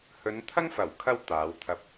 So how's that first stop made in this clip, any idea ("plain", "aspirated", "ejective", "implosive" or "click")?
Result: aspirated